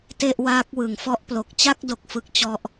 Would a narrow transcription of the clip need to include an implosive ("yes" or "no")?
no